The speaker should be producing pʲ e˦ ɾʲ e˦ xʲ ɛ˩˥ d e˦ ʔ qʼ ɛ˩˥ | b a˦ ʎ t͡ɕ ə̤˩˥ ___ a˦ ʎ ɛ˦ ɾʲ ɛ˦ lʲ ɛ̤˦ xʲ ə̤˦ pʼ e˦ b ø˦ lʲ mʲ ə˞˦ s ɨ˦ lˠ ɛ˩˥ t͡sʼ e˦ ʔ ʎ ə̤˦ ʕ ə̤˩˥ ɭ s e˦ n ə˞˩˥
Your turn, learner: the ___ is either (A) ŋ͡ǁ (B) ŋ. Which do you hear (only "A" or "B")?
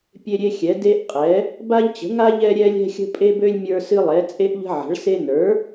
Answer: B